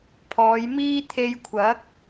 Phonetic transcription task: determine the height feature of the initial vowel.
mid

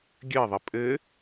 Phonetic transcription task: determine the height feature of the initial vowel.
mid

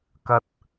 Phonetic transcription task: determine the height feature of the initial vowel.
low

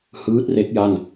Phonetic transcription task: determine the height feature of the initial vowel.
high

